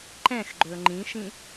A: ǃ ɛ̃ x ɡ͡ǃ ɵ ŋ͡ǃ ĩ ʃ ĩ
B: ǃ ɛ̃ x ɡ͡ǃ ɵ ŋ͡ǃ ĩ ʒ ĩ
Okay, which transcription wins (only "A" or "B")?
A